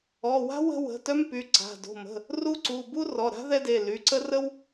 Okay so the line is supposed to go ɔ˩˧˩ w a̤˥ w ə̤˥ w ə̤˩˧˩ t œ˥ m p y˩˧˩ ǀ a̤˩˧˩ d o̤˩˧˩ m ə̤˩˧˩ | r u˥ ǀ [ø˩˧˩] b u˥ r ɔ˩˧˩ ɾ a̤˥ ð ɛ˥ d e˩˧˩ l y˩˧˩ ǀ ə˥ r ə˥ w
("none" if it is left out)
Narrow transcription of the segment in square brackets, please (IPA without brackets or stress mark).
u˩˧˩